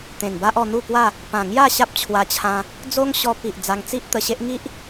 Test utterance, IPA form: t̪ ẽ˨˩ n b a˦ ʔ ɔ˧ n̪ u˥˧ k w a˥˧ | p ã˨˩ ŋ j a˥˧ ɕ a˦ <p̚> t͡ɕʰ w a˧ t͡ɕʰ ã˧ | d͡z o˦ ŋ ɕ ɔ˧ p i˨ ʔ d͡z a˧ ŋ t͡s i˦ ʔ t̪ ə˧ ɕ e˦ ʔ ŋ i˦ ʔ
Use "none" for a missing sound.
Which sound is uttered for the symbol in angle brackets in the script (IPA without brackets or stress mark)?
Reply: p̚